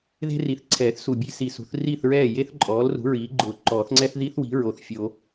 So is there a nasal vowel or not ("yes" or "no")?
no